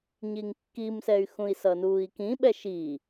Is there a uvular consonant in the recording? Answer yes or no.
no